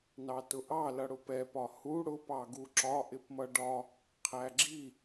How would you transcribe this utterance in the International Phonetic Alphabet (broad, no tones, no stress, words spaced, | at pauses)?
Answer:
nɑtʊʔɑ lʌɽʊpɛ pɒhu ɽʊ pɑɡuǁɒ ʔɪpmʌɖɒ | qʰæɡ͡ǁi